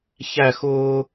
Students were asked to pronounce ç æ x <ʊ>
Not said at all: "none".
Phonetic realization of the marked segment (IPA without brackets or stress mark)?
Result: ʊː